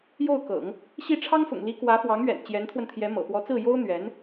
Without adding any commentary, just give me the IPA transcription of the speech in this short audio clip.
j o˥˩ ʊ̯ k ɤ̰˨˩˦ ŋ | ɕ i˥˩ ʈ͡ʂʰ ɑ˥ ŋ f ʊ̰˨˩ ŋ l i˧˥ k w ä˧˥ f w ɑ˧˥ ŋ ɥ ɛ̰˨˩ n t͡ɕ j ɛ˧˥ n t̪ʰ w ə˧ n t̪ʰ j ɛ˧˥ m ɤ̰˨˩ p w ɔ˧˥ t͡s ɹ̩˥˩ j o˥ ʊ̯ n̪ ɥ ɛ˧˥ n

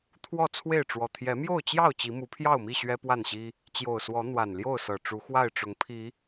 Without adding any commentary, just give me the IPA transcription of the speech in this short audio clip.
t̪ʰ w ɔ˥˨ t͡sʰ w e˥˨ ɪ̯ ʈ͡ʂ w ɔ˨˩ t̪ʰ j ɛ˨˦ m j o˥˨ ʊ̯ t͡ɕ j ɑ˥˨ ʊ̯ t͡ɕ i˨˦ m u˨˦ pʰ j ɑ˥˨ ʊ̯ m i˥˨ ɕ ɥ ɛ˦ p w a˥˨ n ɕ i˦ | t͡ɕ j o˨˩ ʊ̯ s w ɔ˨˦ n̪ w a˨˩ n l j o˥˨ ʊ̯ s ɤ˨˩ ʈ͡ʂ u˨˦ x w a˥˨ ɪ̯ ʈ͡ʂ ʊ˨˦ ŋ pʰ i˨˦

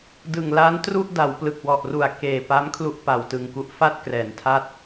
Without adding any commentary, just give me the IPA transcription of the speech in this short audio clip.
d ɯ˨˩ ŋ l a˦˥ n t r u˥˩ ʔ d a˩˦ w p l ɯ˨˩ k̚ w ɔ˨˩ ʔ r u˨˩ a̯ k eː˨˩ p a˦˥ m kʰ l u˦˥ ʔ p a˨˩ w t ɯ˧ ŋ k u˥˩ ʔ f a˥˩ t̚ k r ɛː˩˦ n tʰ a˥˩ t̚

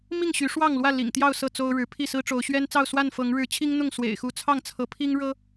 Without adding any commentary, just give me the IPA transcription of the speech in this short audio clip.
m i˥˨ ŋ ɕ y˨˦ ʂ w ɑ˥˨ ŋ l w ä˥˨ l ḭ˨˩ ŋ t̪ j ɑ˥˨ ʊ̯ s ɤ˥˨ t͡s o˦ ʊ̯ ɻ ɻ̩˨˦ pʰ i˥˨ s ɹ̩˦ ʈ͡ʂ o˨˦ ʊ̯ ɕ ɥ ɛ˦ n t͡s ɑ˥˨ ʊ̯ s w a˥˨ n f ɤ˨˦ ŋ ɻ ɻ̩˨˦ t͡ɕʰ i˦ ŋ n̪ ʊ˥˨ ŋ s w ḛ˨˩ ɪ̯ x u˨˦ t͡sʰ ɑ˥˨ ŋ t͡sʰ ɤ˨˦ pʰ i˦ ŋ ɻ ɤ˦

